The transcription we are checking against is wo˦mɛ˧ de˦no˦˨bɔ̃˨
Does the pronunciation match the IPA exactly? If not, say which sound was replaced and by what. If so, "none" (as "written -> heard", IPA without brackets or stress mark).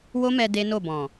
none